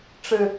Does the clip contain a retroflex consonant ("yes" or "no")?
yes